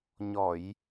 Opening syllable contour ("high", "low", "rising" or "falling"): low